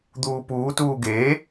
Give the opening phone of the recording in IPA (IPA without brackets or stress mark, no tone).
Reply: d̪